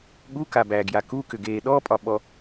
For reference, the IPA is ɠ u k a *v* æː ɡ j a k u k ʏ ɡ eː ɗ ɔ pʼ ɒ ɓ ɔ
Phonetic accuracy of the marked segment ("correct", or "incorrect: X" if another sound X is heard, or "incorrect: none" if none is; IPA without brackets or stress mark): incorrect: b